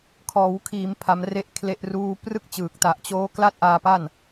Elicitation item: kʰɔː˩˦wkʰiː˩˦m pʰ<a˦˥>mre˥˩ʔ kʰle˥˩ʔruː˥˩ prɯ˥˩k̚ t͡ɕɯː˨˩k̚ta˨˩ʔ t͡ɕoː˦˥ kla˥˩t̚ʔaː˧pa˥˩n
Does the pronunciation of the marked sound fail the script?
no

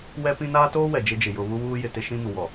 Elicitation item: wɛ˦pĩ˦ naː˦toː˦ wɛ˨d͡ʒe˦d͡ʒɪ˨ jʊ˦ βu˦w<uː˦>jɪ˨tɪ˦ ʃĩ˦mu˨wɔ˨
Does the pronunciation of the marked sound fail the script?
no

